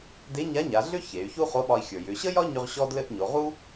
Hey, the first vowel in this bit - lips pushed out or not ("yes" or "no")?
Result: no